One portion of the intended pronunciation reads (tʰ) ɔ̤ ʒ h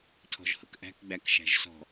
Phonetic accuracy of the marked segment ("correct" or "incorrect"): correct